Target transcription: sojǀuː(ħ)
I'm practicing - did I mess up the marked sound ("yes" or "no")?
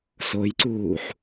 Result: no